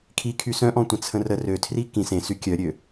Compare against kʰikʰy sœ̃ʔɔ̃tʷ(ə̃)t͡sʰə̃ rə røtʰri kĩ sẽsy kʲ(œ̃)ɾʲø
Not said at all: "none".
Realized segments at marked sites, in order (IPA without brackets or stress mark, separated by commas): ə̃, œ